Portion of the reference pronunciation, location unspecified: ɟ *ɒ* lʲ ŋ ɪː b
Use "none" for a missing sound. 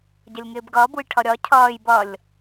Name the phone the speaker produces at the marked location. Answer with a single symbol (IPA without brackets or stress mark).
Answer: ʌ